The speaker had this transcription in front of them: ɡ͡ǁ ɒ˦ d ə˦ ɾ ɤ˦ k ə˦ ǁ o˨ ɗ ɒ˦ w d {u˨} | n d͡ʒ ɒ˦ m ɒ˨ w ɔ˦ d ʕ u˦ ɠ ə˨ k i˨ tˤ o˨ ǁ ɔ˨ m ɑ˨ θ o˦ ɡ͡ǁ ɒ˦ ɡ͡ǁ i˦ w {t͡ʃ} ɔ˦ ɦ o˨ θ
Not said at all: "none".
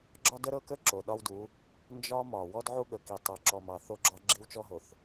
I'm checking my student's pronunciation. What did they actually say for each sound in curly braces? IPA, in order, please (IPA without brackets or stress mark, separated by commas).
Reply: u˨˦, t͡ʃ